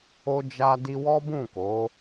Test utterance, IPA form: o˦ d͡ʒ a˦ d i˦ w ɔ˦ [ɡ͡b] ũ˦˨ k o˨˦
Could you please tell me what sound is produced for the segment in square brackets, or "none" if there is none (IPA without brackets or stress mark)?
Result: b